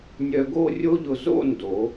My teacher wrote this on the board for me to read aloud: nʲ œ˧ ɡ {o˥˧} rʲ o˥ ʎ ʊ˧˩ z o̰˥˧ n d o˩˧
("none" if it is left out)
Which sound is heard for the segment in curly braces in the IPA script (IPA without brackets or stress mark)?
o˥˧